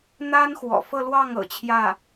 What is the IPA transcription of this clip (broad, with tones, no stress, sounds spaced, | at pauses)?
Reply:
n̪ a˥ n x w ɔ̰˨˩ f ɤ˥˧ l w ɑ˥˩ ŋ ɤ̰˨˩ t͡ɕʰ j ä˥˩